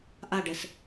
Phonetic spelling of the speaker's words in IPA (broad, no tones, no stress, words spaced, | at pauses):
ʔaɖɛs